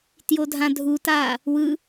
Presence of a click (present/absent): absent